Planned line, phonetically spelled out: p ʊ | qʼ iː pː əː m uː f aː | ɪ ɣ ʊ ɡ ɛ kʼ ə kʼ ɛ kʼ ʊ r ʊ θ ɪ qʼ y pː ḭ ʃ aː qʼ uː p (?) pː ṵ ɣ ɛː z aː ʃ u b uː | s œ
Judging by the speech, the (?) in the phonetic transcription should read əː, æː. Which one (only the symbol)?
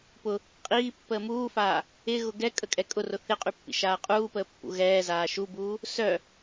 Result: əː